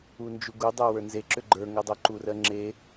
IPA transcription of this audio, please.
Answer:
u n d͡ʒ u ɡ u dˤ ɜ w ə˞ n z e ǁ ʏ ɡ͡ǃ ə˞ ŋ ɜ dˤ o ǃ u r ɜ ŋ͡ǁ e

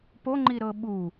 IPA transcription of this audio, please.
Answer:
p o ŋ͡ǃ i ɾ ɤ ɓ u

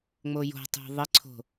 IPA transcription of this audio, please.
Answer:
ŋ͡m o j o̤ tˤ ṳ ðˤ ɘ ǀʰ o̤

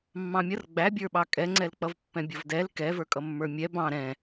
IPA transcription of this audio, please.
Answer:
mː ɑ̃ mʲ ʌ r ɡ͡b æ bʲ ə˞ ɓ ɑ kʼ ɛ ŋ͡ǀ ɛ l k͡p ʌ v pː ɛ̃ bʲ ʌ v d ɛ l k ɛ v ə˞ kʼ ʌ mː ə˞ mʲ ɛ b ɑ̃ ɾ ɛ̃

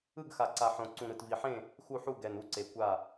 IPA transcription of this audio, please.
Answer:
ɯ˥˨ ɡ x a˨˩ ǀ a˨˩ ħ õ˨˩ ǀ ũ˨˩ ɾ ɯ˨˩ t v i˨˩ ħ ẽ˥˨ | x u˥˨ ħ u˥˨ ɡ ɛ˨˩ n u˥˨ ǀ e˨˩ kʷ a˥˨

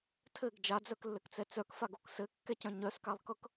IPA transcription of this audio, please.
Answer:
tʰ ɘ ɡ d͡ʒ a d͡z œ k lː ɘ k t͡s ɛ t͡s œ k f a ɡ o k s ɘ kː ɛ c œ̃ ɲ œ s k a lˠ k ɤ k

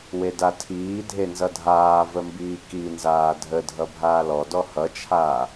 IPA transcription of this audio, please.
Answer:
w e d a tʰ iː dʱ e n z ʌ dʱ aː v ə m b iː k i n z aː dʱ ə dʱ ʌ bʱ aː l ɔ d ɔ h ʌ t͡ʃʰ aː

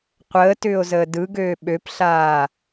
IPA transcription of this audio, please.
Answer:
qʷ əː t ʏː o̯ z əː d ɯ ɡ øː ɓ ø p ɬ aː

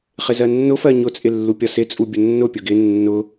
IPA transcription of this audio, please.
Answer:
χ ɪ z ɜ nː ʊ f ɜ ɲ ʊ t͡sʼ ɪ lː u pʲ ɒ s ɪ t͡sʼ u bʲ ʊ nː ʊ pʲ ʊ ɡ ɪ nː ʊ

